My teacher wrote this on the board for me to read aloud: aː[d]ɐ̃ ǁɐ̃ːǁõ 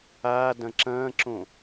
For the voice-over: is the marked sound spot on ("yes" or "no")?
yes